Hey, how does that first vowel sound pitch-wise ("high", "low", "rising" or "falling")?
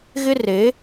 high